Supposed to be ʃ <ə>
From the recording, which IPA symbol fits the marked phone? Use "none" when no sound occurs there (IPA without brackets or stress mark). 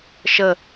ə